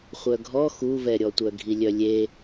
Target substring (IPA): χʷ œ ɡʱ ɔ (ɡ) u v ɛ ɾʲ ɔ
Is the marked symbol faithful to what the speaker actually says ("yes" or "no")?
no